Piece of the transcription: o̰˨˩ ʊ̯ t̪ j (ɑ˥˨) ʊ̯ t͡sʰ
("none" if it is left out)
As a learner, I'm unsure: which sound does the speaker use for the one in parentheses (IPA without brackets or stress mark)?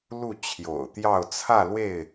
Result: ɑ˥˨